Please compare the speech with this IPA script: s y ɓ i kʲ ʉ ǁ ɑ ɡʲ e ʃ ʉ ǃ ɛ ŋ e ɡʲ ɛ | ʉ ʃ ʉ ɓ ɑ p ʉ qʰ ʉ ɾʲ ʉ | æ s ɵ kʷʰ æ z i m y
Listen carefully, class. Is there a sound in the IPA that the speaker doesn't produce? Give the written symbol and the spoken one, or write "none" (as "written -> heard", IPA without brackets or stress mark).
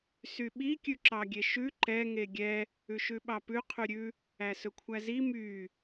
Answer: none